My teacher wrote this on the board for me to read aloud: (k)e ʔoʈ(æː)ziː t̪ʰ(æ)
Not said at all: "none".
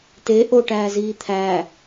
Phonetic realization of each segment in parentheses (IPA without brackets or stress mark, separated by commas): t, æː, æ